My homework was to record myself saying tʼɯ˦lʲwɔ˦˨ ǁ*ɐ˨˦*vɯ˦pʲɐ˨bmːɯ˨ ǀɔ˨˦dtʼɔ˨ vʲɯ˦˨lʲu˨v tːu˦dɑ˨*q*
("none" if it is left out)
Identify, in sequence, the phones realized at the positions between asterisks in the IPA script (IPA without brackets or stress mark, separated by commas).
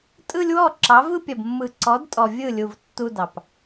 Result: ɑ˨˦, p